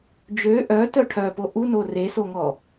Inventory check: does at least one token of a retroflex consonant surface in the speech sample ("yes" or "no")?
yes